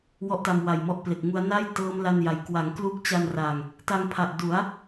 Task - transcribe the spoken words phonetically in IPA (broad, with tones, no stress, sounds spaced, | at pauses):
w ɔ˦˥ ʔ t a˧ m w a˨˩ j m ɔ˦˥ ʔ p l e˨˩ k̚ ŋ u˦˥ a̯ n a˥˩ j t ɤː˦˥ m l a˥˩ n j a˧ j k w a˩˦ ŋ k l u˦˥ k̚ t͡ɕ a˧ n r a˨˩ ŋ | t a˧ ŋ pʰ a˨˩ ʔ d u˩˦ a̯